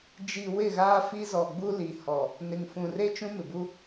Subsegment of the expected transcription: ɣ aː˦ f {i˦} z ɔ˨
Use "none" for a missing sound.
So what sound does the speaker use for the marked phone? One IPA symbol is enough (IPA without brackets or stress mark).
i˦